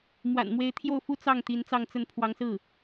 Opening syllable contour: low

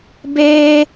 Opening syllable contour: high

